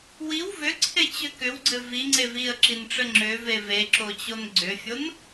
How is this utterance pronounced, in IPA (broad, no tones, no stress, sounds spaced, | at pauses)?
w i w v ʏ ǀʰ e t͡ɕ ʏ k ʏ w ɡ͡ǀ ɘ v i ŋ͡ǀ e v i ə̯ ǁ i n ʈ͡ʂ ɘ ŋ͡ǁ ʏ v e v e ǁ o t͡ɕ o n ɡ͡ǀ ʏ fʲ o n